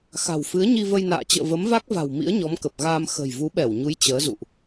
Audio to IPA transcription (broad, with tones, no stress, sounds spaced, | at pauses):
x a̤˨˩ w f ɨ˨˦ ə̯ ɲ i˧ v ə˧ j n a̰ː˧˨ t͡ɕ ə̰ː˧˨ v ə˨˦ m v a˦˥ k̚ v a̤˨˩ w m ḭ˧˥ ə̯ ɲ ɔ˨˦ m k ə˨˩ p̚ ɣ aː˧ m x ə̤˨˩ j v u˨˦ ɓ ɛ˧˩ w ɲ u˨˦ j t͡ɕ əː˨˦ z ṵ˧˨ ʔ